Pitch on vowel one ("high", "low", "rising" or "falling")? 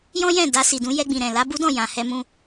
high